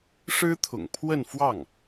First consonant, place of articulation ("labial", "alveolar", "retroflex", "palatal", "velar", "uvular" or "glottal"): retroflex